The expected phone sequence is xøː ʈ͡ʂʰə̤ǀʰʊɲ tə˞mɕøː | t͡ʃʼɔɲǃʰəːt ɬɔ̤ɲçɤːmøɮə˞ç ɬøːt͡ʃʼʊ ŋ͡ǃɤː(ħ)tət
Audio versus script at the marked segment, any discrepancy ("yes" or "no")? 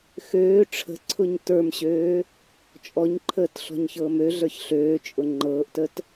yes